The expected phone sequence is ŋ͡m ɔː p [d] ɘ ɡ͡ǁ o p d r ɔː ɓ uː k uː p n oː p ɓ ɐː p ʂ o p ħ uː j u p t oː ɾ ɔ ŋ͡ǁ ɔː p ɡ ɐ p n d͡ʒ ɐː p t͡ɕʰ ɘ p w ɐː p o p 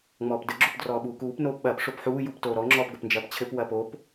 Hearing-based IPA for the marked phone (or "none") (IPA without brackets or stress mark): d